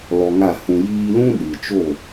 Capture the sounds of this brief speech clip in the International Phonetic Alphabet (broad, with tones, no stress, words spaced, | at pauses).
lɔ˧ŋa˦˨hũ˧ jiː˧lũ˦ ɗɨ˨t͡ʃo˦˨